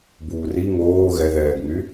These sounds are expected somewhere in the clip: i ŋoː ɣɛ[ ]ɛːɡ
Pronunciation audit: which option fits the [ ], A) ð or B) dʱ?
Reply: A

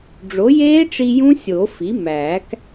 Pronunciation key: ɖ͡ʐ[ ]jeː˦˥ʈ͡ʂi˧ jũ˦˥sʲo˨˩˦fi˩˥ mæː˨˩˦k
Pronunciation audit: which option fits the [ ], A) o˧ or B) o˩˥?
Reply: B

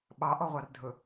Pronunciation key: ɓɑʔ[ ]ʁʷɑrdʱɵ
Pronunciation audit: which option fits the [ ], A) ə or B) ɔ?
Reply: B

